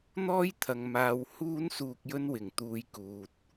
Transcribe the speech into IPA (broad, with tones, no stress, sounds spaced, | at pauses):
n̪ ɔː˥ j t̪ʰ ɐ˨ ŋ m aː˧ w h uː˥ n s uː˧ k̚ j ɵ˧ n w ɪ˨˩ ŋ t̪ uː˧ j k uː˨ t̚